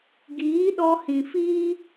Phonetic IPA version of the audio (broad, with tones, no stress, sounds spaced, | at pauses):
ɡ iː˨˦ ɗ ɔ˧ h ĩ˨ f iː˦